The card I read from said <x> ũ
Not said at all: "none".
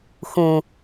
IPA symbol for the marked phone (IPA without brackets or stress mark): x